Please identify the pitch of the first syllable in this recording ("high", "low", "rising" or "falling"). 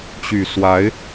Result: low